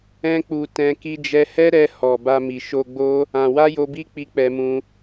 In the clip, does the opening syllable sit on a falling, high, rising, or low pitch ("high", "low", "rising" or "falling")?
high